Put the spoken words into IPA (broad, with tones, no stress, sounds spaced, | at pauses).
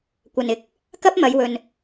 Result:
kʷ ɐ˨ n ɪ˨ k̚ | k ɐ˥ p̚ m ɐ˨˧ j w ɵ˨ n